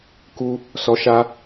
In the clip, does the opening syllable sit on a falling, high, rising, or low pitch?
high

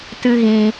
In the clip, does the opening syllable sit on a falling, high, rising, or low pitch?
high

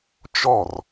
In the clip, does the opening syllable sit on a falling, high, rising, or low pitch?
falling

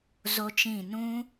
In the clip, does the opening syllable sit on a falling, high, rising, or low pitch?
high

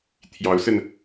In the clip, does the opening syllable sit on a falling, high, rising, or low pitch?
rising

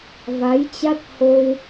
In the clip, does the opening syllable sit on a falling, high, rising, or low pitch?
rising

